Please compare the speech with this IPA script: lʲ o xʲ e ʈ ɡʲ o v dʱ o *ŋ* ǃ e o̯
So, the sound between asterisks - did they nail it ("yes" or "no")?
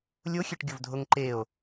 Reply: yes